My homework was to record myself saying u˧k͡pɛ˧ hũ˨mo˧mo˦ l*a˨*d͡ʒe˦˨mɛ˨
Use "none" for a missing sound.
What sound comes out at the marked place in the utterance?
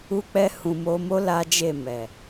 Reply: a˦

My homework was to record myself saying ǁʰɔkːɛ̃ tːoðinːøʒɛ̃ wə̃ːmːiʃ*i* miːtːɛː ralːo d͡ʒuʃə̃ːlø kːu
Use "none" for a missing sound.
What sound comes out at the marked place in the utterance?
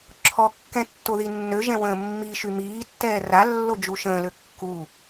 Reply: y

